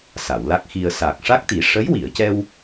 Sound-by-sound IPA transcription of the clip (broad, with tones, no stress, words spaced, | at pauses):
sa˨˩˨wla˦˥k̚xi˧ə̯ saː˨˩k̚ʂa˦˥k̚t̪i˨˩˦ ʂə˧˥jwi˨˩˨ə̯cɛ˧w